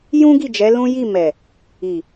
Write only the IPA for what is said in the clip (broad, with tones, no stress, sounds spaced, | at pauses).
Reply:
j ũ˦ ɡ i˦˨ d͡ʒ ɛ˨˦ l ũ˦ j i˦˨ m ɛ˨ | i˨